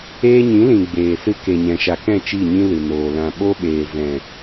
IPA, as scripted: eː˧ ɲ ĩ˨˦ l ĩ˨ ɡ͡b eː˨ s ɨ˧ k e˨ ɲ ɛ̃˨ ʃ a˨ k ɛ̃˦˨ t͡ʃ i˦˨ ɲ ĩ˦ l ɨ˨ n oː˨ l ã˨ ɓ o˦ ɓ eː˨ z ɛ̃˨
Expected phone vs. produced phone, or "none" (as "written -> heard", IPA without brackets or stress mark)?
none